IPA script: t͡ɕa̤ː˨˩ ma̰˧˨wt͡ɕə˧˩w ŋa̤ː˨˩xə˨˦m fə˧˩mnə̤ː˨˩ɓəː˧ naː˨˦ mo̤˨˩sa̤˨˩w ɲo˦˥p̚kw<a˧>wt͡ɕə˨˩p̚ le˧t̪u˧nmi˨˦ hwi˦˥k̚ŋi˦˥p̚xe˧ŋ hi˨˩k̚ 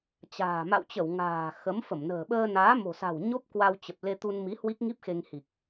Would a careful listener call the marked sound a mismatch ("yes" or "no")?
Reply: no